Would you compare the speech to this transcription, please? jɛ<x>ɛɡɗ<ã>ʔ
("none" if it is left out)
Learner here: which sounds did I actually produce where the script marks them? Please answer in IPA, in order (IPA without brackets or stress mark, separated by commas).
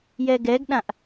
ɡ, ã